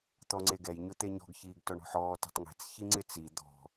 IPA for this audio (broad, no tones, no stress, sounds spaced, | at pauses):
t̪ ɔ ŋ͡ǀ e ɡ ɛ j ɲ ʊ t̪ e ɲ ɔ̤ ɡ ç iː ɡ t ɔ ɳ ɔ̤ ħ ɔː t ɛ̤ tˤ ŋ e̤ t͡s ç i ŋ͡ǀ ɪ t͡s i d̪ ɔ̤